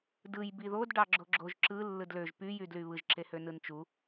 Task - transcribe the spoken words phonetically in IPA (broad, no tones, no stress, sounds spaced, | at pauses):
d ɯ j b i ð o d ɖ ɑ ɡ͡ǁ o ɡ͡ǁ o ʒ ǁ ɯ lː ɯ d l ø ʒ p y j y d l y β ɯ ʒ ǁ e h ø n ɯ n t͡ʃ u